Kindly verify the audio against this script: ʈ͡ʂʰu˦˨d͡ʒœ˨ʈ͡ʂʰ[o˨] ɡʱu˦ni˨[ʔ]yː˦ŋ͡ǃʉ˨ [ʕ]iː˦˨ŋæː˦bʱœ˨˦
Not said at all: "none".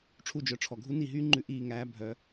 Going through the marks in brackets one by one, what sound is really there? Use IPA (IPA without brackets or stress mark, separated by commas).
ɔ˨, ɦ, ʔ